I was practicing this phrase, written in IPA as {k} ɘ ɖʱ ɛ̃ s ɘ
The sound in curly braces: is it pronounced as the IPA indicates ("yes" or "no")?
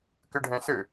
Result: yes